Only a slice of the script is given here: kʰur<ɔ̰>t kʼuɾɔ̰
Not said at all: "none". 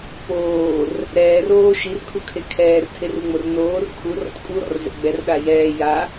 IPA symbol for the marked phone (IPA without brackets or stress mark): ɔ̰